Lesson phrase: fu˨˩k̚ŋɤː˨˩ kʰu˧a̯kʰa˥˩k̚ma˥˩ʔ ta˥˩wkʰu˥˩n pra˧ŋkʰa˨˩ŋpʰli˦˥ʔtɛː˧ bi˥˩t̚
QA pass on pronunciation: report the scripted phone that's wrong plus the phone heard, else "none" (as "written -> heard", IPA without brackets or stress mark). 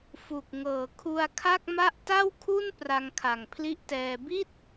none